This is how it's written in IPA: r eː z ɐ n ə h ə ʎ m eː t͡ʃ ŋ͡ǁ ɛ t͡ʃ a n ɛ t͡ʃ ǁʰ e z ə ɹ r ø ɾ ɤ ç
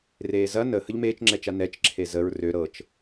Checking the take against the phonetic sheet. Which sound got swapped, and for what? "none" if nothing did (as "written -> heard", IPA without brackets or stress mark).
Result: ç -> t͡ʃ